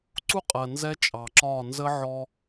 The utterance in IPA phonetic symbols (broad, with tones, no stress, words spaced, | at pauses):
ǀu˦qʼɜ˨ nzɛ˦t͡ʃʼɑ˨ǁɒː˦˨ nzə˦ʕɔ˦